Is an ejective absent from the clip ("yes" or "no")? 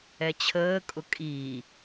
no